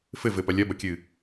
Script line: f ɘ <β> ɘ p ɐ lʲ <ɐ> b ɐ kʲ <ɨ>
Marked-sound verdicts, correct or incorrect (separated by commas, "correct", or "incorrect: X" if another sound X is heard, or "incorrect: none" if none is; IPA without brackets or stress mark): incorrect: v, correct, correct